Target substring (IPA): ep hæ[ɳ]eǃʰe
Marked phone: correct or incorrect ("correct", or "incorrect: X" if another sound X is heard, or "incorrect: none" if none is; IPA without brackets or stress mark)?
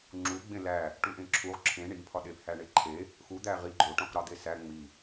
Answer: correct